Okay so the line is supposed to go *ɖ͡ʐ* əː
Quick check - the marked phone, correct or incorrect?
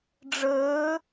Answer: correct